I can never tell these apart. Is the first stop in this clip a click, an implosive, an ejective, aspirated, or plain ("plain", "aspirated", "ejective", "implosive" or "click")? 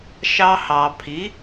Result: aspirated